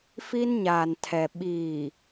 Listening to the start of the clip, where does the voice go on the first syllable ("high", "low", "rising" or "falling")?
high